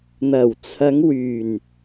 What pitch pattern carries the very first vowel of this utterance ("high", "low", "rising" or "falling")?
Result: low